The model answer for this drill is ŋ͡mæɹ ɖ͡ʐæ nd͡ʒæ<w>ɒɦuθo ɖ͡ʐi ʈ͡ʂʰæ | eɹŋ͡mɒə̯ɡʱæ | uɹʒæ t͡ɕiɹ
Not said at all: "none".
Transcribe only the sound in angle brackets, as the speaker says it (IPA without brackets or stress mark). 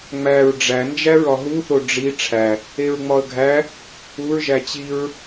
ɹ